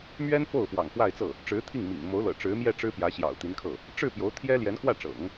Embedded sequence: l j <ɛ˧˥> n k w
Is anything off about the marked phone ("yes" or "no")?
no